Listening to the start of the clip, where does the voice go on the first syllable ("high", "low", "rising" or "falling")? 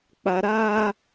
low